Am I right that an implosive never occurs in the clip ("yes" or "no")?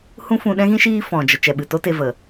no